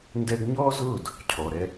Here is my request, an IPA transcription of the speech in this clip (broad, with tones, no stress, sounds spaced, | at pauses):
n d ɛ˧ ɡ ɲ ɔː˦ z ʊː˦˨ d | cʰ ɔ˨ ɾ ɛ˧